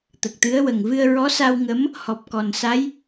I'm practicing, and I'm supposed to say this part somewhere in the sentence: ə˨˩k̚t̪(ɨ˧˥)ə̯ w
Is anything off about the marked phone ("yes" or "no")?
no